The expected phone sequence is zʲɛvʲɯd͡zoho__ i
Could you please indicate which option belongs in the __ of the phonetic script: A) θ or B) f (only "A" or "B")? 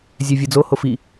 B